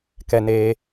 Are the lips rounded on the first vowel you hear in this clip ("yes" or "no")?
no